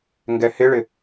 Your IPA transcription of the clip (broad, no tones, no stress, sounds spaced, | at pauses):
ŋ ɡ ɛ h ɪ ɭ ɪ